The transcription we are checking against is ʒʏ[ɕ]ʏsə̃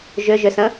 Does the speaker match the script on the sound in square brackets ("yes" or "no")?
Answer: no